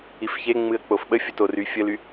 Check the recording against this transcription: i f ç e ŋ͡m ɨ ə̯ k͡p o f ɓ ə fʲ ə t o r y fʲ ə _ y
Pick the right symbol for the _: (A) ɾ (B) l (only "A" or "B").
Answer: B